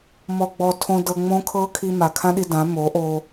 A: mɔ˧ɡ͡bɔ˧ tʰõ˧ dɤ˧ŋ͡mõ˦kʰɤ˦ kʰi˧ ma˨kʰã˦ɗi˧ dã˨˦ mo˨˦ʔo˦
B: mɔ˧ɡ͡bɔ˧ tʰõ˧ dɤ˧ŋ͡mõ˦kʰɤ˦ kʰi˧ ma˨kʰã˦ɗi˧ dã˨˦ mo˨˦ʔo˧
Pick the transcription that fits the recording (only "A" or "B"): B